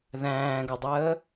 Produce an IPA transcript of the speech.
ð æ̃ː ɡ o dˤ əː

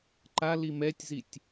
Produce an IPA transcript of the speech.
ǃ a l i m ɛ tʲ z i tʲ

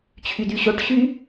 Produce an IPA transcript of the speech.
t͡ɕʰ y d y ɕ o ʈ ɕ y

